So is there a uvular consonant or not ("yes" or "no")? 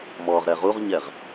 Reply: yes